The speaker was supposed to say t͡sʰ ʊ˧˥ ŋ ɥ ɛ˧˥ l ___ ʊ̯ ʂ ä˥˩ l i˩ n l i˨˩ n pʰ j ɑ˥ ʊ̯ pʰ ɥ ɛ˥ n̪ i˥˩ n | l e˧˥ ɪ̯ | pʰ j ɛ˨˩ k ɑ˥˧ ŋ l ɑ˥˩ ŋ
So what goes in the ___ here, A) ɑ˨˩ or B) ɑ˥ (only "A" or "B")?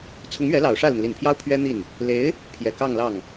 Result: A